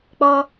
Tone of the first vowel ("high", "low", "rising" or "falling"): high